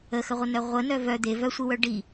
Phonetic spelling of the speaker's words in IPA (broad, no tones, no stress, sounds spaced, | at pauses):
ə x ə ʁʷ ə n œ ʁʷ ə n œ v œ d̪ e v œ sʷ i w œ ɖ i